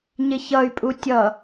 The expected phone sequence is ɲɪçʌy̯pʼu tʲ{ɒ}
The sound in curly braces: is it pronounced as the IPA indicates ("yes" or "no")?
no